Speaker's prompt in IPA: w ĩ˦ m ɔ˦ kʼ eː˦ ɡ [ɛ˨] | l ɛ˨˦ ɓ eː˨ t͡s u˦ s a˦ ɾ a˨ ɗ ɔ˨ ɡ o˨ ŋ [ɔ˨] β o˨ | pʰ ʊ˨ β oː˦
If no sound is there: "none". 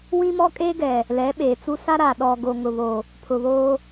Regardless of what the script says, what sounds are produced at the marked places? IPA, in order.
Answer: ɛ˨, ʊ˨

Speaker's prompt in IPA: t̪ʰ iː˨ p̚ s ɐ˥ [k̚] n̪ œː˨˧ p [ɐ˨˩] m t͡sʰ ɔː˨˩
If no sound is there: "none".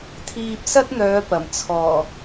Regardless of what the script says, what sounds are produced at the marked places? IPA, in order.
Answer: t̚, ɐ˨˩

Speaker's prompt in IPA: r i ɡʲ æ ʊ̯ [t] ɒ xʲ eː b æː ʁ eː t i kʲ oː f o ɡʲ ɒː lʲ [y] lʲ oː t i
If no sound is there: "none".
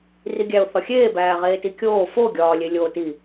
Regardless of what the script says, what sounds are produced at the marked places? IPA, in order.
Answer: θ, e

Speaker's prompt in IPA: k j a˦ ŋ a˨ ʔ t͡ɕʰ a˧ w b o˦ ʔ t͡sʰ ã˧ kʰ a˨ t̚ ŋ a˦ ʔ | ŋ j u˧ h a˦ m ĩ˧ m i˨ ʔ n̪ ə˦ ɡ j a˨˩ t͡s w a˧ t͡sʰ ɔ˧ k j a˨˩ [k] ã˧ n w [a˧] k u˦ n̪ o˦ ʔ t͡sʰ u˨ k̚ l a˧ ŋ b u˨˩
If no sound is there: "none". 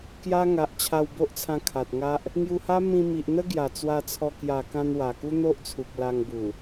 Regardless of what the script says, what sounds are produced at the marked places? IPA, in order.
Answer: k, a˨˩

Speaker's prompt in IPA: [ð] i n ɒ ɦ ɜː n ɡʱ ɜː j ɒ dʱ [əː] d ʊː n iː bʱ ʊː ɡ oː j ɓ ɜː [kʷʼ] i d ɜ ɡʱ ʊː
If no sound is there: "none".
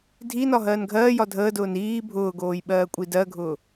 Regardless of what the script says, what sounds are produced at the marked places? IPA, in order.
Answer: dʱ, əː, kʷʼ

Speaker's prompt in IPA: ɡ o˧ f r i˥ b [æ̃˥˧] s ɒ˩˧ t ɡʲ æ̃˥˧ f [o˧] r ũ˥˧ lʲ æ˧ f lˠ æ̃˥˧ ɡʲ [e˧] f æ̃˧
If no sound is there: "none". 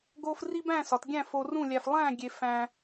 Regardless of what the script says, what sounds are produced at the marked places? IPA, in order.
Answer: æ̃˥˧, o˧, e˧

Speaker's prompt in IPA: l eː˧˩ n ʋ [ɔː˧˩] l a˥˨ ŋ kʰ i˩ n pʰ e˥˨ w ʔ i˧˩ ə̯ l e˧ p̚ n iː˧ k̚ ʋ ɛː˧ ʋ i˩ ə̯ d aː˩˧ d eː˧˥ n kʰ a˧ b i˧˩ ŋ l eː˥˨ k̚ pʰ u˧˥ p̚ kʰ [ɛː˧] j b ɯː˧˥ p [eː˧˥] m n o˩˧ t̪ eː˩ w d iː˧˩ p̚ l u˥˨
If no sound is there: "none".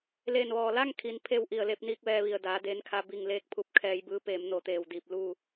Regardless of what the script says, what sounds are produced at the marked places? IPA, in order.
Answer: ɔː˧˩, ɛː˧, eː˩˧

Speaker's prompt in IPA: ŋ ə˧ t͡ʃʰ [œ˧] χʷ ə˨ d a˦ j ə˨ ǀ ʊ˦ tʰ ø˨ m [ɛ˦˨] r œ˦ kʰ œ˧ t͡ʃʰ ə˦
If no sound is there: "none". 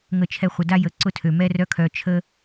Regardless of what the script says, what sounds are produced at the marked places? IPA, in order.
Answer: ɛ˧, ɛ˦

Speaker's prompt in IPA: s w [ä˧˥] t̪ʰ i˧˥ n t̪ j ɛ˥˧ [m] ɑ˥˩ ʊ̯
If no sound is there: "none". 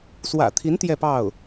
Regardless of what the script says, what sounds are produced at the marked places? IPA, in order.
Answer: ä̰˨˩, p

